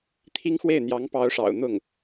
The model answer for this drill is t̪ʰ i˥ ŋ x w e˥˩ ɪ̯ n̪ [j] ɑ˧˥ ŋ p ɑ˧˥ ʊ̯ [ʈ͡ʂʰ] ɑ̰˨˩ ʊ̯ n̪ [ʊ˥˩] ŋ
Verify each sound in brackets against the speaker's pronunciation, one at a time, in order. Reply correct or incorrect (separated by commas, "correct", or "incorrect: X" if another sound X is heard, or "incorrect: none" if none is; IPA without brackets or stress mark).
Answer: correct, incorrect: ʂ, correct